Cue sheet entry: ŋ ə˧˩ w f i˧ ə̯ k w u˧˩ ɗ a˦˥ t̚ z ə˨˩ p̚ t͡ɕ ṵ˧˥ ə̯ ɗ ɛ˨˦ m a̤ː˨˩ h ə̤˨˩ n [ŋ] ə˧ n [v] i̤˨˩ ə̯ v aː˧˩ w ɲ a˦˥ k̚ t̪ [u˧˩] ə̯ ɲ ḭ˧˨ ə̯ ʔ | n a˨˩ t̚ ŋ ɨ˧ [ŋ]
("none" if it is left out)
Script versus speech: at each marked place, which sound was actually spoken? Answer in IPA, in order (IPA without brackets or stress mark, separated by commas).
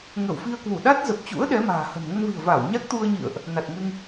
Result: ŋ, v, u˧, ŋ